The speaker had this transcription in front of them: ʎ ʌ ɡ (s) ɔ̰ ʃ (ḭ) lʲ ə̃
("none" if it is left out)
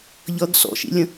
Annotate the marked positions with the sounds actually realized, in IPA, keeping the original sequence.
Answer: s, ḭ

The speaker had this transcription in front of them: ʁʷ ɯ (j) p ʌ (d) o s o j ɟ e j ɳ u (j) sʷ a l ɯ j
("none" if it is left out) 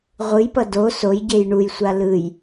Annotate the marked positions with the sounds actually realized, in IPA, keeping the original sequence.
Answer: j, d, j

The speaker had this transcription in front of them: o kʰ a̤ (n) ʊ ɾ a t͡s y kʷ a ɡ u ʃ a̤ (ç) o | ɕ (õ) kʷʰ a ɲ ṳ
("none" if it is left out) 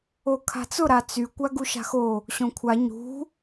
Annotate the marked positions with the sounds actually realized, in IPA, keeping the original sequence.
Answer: t͡s, x, õ

